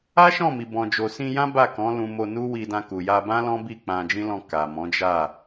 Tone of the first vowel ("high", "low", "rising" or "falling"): high